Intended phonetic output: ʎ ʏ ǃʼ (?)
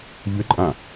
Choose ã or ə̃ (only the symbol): ã